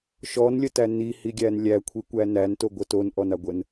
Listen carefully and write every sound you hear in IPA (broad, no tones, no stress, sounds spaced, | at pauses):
ʃ ɔ n lʲ ə t æ n i h i ɡʲ æ n lʲ æ kʷʰ i kʷ æ n æ n t o ɡʷ ə t o n ʔ ɔ n a ɡʷ ə n